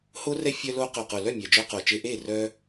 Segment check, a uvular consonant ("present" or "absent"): present